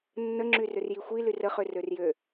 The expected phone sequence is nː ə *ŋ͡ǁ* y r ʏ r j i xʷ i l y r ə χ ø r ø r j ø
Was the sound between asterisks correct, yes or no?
yes